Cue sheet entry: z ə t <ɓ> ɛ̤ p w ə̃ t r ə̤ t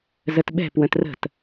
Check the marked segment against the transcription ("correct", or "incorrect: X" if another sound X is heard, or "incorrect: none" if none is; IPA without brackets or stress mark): correct